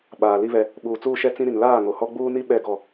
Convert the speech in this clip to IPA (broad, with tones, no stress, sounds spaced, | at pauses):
ɓ aː˨ l i˦ β ɛ˦ | ɓ uː˨ t͡s uː˦ ʃ ɛ˦ t͡s ĩ˦ ɾ i˨ n l aː˦˨ ŋ o˨ h ɔ˦ ɡ͡b uː˦ n i˦ ɓ ɛ˦˨ ɡ ɔ˦˨